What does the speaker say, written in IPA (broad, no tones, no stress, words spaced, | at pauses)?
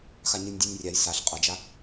xaɲɯnʲdʲɯnʲrʲaj saɬ qʼʌd͡ʒa